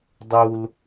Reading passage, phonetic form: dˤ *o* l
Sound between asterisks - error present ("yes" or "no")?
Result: yes